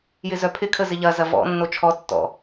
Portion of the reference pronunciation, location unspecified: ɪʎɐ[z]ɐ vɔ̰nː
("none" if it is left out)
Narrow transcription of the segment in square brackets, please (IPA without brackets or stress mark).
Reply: z